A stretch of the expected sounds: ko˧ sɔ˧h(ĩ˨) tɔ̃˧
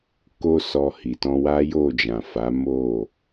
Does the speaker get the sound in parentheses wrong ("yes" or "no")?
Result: yes